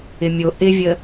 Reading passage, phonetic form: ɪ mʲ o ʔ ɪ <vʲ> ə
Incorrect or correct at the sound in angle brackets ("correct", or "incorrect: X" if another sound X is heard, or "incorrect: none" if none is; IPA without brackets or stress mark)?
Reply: correct